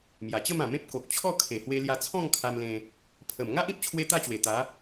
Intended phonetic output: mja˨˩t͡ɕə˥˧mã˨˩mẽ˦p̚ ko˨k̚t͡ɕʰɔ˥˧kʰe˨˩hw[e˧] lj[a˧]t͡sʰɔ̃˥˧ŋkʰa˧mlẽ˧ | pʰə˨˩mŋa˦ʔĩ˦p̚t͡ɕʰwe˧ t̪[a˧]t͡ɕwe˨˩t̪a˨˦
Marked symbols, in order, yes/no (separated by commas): yes, yes, no